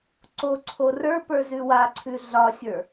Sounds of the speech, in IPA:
ǀoǀʰo rə˞pə˞ zʉwaǀʰʉ ɮɒsʲə˞

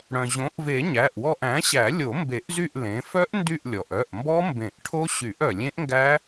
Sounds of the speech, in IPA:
ɽœ̃˩ʑõ˩˥ʔve˨˩˦ ɲæ˩˧˩ʔwɔ˦˨ʔ æ̃˩˥ɕæ˨˩˦ lʲo˨˩˦mbe˨˩˦ʔzy˦˨ʔ lẽ˩˥ fœ˦˥ʔndy˦˨ʔlʲɔ˩ʔœ˩˧˩ʔ mbɔ˦˥mbẽ˨˩˦ʔʈʰo˦˥ ɕy˨˩˦ʔœ˩lʲẽ˦˥ʔŋɡæ˦˥

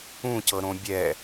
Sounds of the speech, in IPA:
ũcɤɾõ bʲɛ

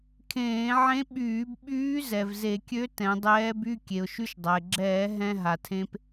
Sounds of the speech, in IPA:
kʰẽː˧˩˧ʕẽ˧˥ɓyː˧˩˧bɓyː˧˥ zɛ˩vze˧˩˧kʲø˧˥ tɛ̃˩˧dˤɛː˧˥by˧˥˧ kʲe˩ʊ̯ʃy˧ʃdˤa˩ɪ̯ɡ͡ǁɛː˧˩˧ ɦɛ̃˧ ɦa˩tʰẽ˧p

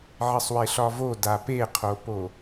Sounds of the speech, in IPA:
ʕɘsˤweɬɒvo dapeqʰopo

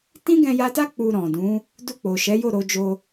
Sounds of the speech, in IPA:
tĩ˦ɡɛ̃˧ja˧ta˦ k͡pu˧ɾɔ̃˨dũ˨˦ | du˧k͡po˨ʃɛ˨˦ jo˦˨ɾo˧d͡ʒo˧

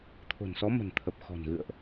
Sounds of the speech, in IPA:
t̪ʰo̤˨˩nsɔ˨˦ mə̤˨˩nt̪ʰə˨˩p̚ xɔ̤˨˩nɣɨ̰˧˨ə̯ʔ

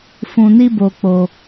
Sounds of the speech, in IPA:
fũ˧ni˦bo˧ k͡po˧

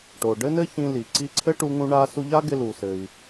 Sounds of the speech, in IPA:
ʈo˩ ɖɘ˥nɘ˥çĩ˧li˩ ǀi˧ǀʰɘ˥ʈu˧ŋũ˧ ɳa˧su˧ ʎa˥ɡɪ˧lu˩sɘ˩i̯

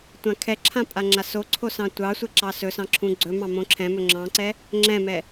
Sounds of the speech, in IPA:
tʷãkʰɛǁʰã pʼaŋ͡ǁasoǀʰo sɑ̃tʷɑsʷɛ ǁɑsɵsɑ̃ ǁʰũɡ͡ǀɵmɑ̃ mõǁʰɛ̃mɵ ŋ͡ǁɑ̃ǀɛ | ŋ͡ǁɛ̃mɛ

